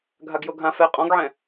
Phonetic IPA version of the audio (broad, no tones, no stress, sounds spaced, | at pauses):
ɡʱ a ɡ j o ɡʱ ã f ɛ qʼ ɔ̃ ɡ ʕ ɛ̃